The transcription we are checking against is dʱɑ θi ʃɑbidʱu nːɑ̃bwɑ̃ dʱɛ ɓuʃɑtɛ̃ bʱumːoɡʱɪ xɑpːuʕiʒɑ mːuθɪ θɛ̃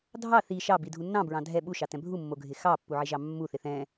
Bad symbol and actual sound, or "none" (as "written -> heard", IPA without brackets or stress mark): w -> ɹ